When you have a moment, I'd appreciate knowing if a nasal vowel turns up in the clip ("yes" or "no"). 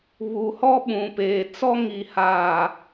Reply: yes